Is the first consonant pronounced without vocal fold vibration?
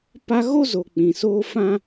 yes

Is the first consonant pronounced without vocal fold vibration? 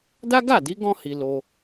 no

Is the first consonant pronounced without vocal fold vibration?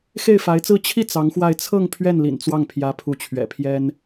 yes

